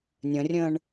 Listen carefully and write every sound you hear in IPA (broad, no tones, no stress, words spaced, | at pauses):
nʲə̃rʲə̃ːɳ